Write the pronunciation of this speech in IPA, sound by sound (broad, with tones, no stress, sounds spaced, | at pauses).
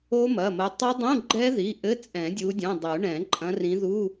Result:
o˦˥ m ɐ˩˧˩ m ɐ˨˦ tˤ ɐ˦˥ dˤ ũ˧˥˧ ɡ͡ǃ ɛ˦˥ ð i˩˧˩ ʔ ɘ˧˥˧ t͡sʼ ɛ̃˨˩˦ dʲ u˨˦ dʲ ũ˩˧˩ dˤ u˨˩˦ ɳ ɛ̃˨˩˦ ǃʼ ɐ̃˨˦ r ĩ˨˦ ð u˧˥˧